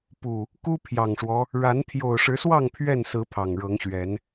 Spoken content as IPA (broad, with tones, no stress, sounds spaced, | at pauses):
p u˨˩ | k u˦ pʰ j ɑ˨˩ ŋ ʂ w ɔ˦ | ɻ a˨˦ n t̪ʰ j o˨˩ ʊ̯ ʂ ɻ̩˨˦ s w ɑ˥˨ ŋ pʰ ɥ ɛ˥˨ n s ɹ̩˨˦ pʰ ɑ˨˩ ŋ ɻ ɤ˨˦ ŋ ɕ ɥ ɛ˨˦ n